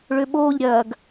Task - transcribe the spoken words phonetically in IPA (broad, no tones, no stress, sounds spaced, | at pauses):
ɭ ø ɓ oː ʎ ɾʲ ɐː ɡ